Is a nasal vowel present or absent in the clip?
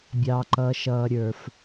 absent